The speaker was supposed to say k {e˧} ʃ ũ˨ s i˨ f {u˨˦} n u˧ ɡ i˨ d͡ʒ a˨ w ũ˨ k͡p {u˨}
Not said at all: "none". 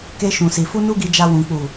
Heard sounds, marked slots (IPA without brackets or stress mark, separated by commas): e˧, u˧, u˨